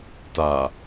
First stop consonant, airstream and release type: plain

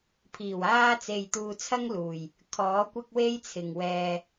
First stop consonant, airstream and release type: aspirated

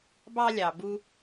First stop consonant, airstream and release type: plain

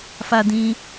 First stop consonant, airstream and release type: plain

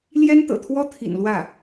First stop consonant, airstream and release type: plain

